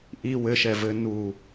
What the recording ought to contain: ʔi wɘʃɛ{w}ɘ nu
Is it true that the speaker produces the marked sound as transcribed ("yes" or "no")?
no